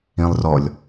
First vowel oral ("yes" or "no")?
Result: no